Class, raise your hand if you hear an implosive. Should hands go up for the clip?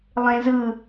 no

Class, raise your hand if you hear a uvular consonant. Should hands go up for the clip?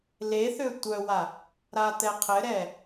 yes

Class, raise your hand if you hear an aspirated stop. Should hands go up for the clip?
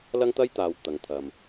yes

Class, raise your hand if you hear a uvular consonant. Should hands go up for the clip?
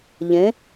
no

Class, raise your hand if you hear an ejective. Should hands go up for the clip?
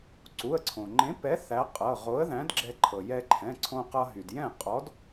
yes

